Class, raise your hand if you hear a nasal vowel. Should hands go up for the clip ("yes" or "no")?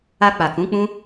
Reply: yes